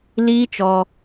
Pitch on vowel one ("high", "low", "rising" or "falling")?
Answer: high